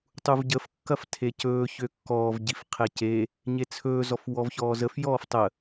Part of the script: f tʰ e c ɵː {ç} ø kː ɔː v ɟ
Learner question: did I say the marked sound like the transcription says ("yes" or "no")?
yes